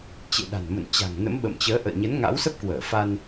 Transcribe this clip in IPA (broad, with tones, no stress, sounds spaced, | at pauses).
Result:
t͡ɕ ḛ˧˨ ɗ a̤˨˩ n m ə̰˧˨ n t͡ɕ a̤˨˩ ŋ n ə̰˧˥ m ɓ ə̰˧˨ m t͡ɕ əː˨˦ ʔ ə̰ː˧˨ ɲ ə˨˦ n ŋ a̰˧˥ w s ə˦˥ p̚ k w əː˧˩ f a˧ n